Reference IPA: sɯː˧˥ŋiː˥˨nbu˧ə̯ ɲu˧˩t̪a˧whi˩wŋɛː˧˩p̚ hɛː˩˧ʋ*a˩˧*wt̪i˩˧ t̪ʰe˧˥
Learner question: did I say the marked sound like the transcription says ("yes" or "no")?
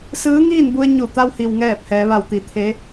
no